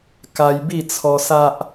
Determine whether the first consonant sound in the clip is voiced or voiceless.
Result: voiceless